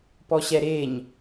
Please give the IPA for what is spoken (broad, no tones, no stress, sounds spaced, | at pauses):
p ɔ ɕ ɛ ɾ e ɲ